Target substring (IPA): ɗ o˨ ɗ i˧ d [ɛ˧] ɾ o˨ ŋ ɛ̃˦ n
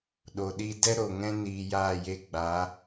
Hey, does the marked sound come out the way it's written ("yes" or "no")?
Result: no